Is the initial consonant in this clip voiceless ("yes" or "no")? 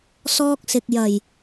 yes